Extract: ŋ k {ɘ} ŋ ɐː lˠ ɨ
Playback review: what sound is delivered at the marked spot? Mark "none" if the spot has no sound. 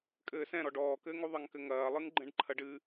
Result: ɘ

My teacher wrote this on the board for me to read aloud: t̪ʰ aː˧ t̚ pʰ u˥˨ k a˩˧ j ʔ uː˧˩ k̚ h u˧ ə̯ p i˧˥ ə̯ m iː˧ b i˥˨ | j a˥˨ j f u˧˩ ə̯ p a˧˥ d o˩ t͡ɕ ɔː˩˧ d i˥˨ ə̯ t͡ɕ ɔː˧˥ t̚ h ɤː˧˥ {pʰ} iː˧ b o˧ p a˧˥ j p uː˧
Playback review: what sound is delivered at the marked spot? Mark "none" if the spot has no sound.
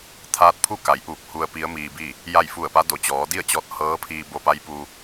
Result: pʰ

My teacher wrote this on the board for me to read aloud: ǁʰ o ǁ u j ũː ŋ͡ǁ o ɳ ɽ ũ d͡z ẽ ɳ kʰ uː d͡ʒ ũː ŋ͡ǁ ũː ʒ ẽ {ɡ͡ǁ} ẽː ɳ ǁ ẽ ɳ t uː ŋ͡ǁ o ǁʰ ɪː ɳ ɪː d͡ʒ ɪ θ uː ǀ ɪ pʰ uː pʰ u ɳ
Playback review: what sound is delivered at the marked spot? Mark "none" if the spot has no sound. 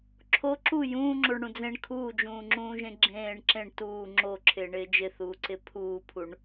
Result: ɡ͡ǁ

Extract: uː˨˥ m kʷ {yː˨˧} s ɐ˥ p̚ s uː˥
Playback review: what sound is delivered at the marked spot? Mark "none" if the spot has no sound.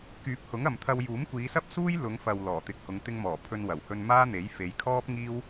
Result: iː˨˧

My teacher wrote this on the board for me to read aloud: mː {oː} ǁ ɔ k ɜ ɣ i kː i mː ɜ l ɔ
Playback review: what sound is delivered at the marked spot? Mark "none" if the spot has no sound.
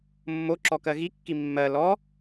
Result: o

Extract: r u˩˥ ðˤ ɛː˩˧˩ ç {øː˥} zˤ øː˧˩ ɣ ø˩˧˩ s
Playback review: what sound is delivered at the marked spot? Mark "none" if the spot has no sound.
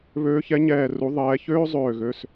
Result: øː˥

